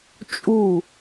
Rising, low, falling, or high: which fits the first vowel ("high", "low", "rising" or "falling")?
falling